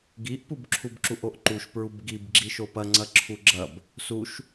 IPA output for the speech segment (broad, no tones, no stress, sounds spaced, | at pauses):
ɡ i ʔ p u b ǁʰ u b ǁ u ʔ o ʔ ǃ u ʃ p ɹ u b ɡ i b ɡ͡ǁ i ʃ o p ɐ ŋ͡ǀ ɐ ǁʰ u ɡ͡ǁ ɐ b | s u ʃ